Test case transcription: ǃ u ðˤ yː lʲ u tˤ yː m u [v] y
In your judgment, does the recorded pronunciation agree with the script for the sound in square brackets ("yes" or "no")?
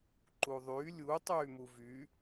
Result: yes